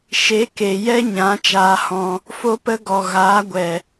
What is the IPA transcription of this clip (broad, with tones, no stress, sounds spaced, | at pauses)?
ʃ e˨˦ k e˨ j ɛ˦ ɲ ã˨˦ t͡ʃ aː˧ h ɔ̃˧ | f o˦ p ə˦ ɡ ɔ˨ ɣ aː˨˦ ɡʷ ɛ˨